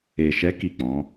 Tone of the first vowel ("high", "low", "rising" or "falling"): low